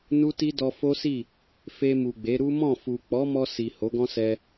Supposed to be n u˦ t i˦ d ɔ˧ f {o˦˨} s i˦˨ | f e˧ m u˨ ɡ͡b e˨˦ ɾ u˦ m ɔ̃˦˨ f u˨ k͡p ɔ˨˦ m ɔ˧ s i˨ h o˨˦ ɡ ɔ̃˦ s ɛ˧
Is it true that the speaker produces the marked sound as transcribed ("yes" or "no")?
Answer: no